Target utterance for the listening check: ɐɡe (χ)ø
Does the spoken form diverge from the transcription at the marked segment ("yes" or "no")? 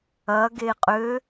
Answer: yes